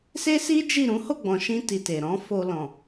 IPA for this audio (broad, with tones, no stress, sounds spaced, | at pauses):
s e˦ s i˦ d͡ʒ i˦˨ ɾ ũ˨˦ h o˦˨ ɡ͡b ɔ̃˨ ʃ ĩ˧ t i˨ t e˨ ɾ ɔ̃˨˦ f o˧ l ɔ̃˨